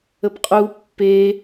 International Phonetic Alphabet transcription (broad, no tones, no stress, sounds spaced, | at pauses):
ə p qʼ u pː e